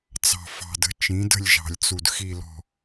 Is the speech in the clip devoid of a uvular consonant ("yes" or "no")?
yes